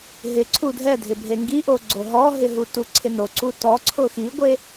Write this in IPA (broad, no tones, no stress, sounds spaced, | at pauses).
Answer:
ɦ ɪ ǀʰ u dʱ ɛ dʱ ɪ bʱ e ŋ ɡ i ʔ o ɡ͡ǀ o ɦ ɔ ɦ ɪ ɦ u t u ǀʰ ɪ n o ǀ u t ɔ ǀʰ ʊ x i ɡʷ e